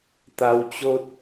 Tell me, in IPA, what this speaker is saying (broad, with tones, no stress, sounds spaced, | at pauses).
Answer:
t̪ a˧ w t͡ɕ o˦ t̚